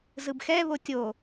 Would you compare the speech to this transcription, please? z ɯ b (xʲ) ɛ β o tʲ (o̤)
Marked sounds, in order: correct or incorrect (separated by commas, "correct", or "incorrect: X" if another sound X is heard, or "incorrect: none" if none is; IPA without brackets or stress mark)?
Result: incorrect: x, incorrect: o